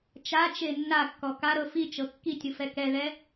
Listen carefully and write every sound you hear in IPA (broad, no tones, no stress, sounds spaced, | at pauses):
t͡ʃ a t͡ʃ e nː a kː ɔ k a ɾ ɤ f i t͡ʃ ɤ kː i tʲ ɯ f ɛ k ɛ ð ɛ